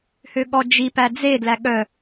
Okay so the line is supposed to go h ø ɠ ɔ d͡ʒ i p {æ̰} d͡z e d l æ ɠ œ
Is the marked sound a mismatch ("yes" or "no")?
yes